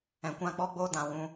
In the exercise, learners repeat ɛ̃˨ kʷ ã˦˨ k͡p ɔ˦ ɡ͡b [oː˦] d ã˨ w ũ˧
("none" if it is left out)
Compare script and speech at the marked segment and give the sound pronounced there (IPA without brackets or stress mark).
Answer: oː˦